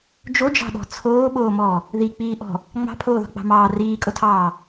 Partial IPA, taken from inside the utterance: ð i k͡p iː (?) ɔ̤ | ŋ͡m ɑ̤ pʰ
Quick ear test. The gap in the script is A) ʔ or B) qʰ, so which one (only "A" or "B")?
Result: A